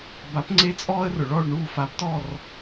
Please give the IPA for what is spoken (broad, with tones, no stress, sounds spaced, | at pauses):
b a˩˥ p ŋ͡ǀ e˧ t͡sʼ ɔː˥ ə̯ r ʊ˩ ɭ ɔ˥˩ ɭ ɳ uː˥˩ f a˩˥ p t ɔ˥˩ r